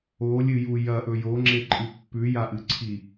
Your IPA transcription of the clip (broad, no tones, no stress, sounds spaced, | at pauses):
o lʲ ɨ j u j ɐ ʔ ɵ j o ŋ͡ǁ e ǃʼ ɨ pː ʉ j a ʔ ɨ ǀʰ i